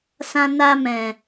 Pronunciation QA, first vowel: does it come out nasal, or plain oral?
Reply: nasal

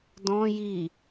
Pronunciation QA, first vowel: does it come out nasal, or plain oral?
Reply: nasal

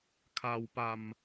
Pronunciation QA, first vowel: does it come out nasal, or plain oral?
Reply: oral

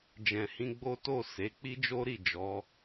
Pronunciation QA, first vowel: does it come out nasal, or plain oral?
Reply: nasal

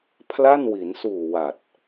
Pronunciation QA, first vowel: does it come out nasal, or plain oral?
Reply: oral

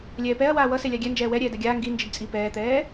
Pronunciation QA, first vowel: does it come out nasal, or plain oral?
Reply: oral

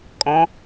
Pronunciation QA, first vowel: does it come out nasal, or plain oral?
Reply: nasal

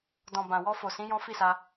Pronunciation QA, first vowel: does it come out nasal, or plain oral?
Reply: nasal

